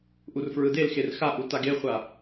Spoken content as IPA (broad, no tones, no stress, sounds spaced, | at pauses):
ʔ u r f ɹ ɯ d e l x e r x a ʔ u t a ɡ e χʷ a